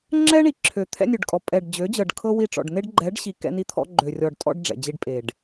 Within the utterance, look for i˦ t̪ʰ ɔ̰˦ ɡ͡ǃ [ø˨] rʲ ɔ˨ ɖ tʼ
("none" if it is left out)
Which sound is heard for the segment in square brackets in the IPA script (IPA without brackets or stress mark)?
ø˨